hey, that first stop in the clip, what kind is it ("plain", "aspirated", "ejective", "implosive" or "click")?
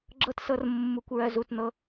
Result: click